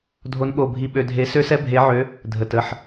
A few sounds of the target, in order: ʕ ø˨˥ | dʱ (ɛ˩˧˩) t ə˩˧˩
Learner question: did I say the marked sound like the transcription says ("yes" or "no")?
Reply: no